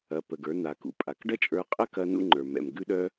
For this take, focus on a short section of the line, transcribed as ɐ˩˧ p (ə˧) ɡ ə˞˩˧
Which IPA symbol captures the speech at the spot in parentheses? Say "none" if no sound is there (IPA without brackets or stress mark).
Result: ə˩